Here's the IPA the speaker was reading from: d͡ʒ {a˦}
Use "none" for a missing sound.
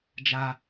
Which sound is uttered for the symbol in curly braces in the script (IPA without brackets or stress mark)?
a˦